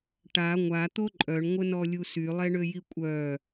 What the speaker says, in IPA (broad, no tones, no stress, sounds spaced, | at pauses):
ʈ a ŋʷ a t̪ o ǃʼ œ ɳ ŋʷ ə n ɔ lʲ u s y lˠ ɛ ɳ ø j i kʷʼ œ